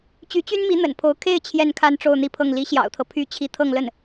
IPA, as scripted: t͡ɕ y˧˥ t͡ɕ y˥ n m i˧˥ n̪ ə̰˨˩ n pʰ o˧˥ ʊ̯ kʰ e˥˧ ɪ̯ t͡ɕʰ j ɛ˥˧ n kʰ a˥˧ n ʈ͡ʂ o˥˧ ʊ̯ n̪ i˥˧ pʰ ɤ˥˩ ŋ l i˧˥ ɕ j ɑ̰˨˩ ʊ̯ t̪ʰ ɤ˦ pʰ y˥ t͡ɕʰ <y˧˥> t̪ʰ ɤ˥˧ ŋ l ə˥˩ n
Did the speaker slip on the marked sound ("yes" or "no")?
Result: yes